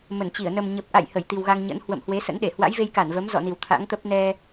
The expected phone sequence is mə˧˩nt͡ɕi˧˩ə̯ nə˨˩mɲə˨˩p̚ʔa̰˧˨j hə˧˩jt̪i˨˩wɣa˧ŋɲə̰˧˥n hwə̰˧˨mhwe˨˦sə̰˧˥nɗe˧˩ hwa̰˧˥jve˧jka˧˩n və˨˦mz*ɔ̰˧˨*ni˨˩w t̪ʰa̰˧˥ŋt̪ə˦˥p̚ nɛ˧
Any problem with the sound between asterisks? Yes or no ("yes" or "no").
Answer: no